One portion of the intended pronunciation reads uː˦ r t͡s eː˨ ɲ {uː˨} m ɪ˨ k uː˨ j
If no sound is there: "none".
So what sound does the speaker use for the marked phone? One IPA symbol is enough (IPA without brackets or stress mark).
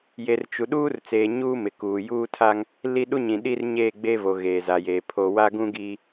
uː˦